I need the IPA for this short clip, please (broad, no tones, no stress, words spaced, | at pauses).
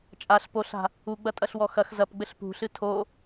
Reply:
t͡ʃʼaɬ poɬa̤ | uɡ͡bɐtʼɐɬwɔ xɐx zɐpɡ͡bɘɬ pṳɬɨ tʰo